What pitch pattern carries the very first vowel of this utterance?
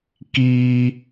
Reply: high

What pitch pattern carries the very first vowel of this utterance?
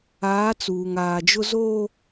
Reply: rising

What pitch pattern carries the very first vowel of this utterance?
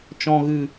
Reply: low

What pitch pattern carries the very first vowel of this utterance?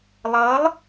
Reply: rising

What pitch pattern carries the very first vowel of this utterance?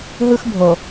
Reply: high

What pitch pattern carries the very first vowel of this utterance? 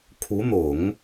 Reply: rising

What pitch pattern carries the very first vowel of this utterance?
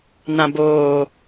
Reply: low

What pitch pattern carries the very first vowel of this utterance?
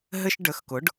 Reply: high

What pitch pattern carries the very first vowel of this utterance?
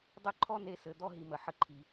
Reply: high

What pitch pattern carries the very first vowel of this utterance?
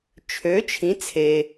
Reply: rising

